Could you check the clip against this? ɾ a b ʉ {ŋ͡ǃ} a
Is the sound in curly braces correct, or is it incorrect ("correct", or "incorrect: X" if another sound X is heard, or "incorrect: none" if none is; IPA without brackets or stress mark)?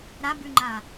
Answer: correct